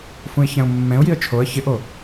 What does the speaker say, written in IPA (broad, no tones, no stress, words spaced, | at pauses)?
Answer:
fũɪ̯çɛ̃ʊ̯mːɛ̃ʊ̯jiə̯ t͡ʃʰoə̯ çɪʔo